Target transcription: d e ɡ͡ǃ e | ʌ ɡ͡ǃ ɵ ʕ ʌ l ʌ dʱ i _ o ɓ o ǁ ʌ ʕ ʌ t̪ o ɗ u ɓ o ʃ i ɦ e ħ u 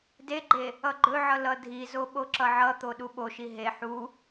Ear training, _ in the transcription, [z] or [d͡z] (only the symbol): z